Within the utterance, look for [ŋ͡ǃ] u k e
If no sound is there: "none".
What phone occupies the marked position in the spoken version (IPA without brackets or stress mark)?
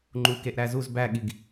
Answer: ŋ͡ǃ